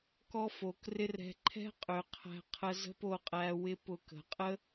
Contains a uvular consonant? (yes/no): yes